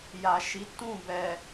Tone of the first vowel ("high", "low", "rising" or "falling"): low